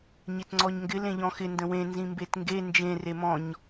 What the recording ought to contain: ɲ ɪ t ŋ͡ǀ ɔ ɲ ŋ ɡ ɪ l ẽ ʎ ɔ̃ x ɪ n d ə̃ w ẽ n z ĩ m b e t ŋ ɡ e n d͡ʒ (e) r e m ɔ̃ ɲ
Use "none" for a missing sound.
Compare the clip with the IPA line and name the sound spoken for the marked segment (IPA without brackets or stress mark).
ẽ